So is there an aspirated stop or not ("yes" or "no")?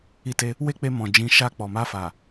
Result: no